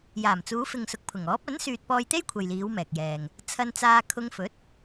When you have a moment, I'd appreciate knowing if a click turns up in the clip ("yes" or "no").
no